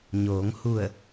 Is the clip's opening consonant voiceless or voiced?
voiced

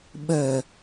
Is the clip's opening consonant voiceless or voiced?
voiced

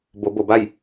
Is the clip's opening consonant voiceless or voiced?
voiced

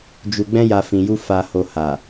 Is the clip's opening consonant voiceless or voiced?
voiced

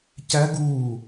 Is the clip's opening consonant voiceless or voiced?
voiceless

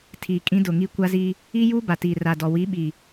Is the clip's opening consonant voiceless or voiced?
voiceless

